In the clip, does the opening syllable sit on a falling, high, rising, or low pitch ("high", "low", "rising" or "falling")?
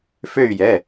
falling